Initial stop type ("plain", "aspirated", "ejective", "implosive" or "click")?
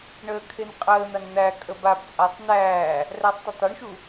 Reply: aspirated